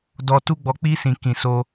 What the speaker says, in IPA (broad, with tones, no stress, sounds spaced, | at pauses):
d ɔ˨ t u˧ ɡ͡b ɔ˨ k͡p i˧ s ĩ˨ k ĩ˨ s o˧